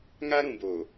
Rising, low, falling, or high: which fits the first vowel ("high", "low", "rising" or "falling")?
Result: high